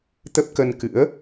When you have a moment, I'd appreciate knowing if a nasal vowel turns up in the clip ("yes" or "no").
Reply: no